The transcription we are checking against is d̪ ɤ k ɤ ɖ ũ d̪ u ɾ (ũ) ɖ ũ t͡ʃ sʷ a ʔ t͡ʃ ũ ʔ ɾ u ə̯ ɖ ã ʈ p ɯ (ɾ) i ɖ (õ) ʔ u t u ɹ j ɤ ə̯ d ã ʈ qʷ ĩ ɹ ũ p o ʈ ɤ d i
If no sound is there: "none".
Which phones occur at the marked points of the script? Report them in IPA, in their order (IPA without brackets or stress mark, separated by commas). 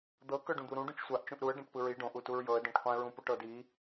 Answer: ũ, ɹ, õ